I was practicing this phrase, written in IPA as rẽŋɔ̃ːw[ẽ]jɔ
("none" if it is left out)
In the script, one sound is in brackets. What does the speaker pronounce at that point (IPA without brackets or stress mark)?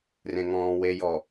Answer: e